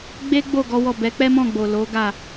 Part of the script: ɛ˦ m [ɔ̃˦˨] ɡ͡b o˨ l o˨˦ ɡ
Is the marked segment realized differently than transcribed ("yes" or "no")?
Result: no